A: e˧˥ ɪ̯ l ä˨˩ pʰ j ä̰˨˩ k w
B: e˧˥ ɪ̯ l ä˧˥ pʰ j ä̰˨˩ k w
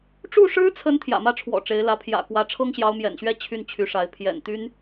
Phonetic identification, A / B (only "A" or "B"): B